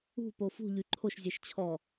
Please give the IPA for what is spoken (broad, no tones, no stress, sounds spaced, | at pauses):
ṳ p o f ṳ ʎ y ǃʰ o ʃ zʲ ɛ ʃ t͡ɕʰ ɔ